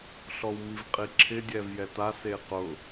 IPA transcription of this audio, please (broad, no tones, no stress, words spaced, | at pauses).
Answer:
ɬɔwmivqʼiǁʰɪ dʲɛvjɛta seqʊ